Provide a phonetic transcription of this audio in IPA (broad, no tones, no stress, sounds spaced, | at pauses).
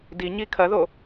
d i ɲ i kʰ ɐ ð o